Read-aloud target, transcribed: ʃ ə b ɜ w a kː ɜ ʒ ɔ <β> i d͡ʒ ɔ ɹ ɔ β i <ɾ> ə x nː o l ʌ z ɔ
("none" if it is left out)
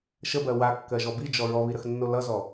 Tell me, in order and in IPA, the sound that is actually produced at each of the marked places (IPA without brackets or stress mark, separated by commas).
b, ɾ